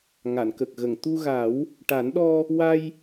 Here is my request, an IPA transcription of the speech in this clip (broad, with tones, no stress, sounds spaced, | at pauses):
ŋ a˨˩˨ n k ə˨˩ k̚ ɣ ə˨˩˨ ŋ t̪ u˧ ɣ a˨˩˦ w | ʈ a˨˩˦ n ɗ ɔ˧ | w a˧ j